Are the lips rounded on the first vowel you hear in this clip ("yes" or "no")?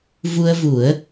yes